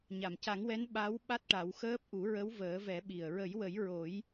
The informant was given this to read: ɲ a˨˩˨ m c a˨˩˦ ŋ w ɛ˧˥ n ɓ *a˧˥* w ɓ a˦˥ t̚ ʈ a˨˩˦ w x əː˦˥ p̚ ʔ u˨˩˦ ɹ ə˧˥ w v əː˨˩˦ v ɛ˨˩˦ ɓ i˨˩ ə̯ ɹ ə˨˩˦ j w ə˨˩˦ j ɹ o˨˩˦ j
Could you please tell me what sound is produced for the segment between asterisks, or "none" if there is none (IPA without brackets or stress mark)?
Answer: a˧˥